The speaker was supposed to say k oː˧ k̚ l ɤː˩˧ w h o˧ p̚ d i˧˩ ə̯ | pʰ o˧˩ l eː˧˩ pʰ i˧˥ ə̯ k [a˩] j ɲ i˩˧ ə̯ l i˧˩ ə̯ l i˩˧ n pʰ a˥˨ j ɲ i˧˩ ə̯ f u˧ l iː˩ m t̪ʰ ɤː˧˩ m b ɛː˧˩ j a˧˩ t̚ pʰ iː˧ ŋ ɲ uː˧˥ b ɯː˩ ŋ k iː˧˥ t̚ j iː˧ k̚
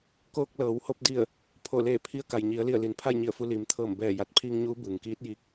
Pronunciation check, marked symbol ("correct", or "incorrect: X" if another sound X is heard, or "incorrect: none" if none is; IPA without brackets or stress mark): correct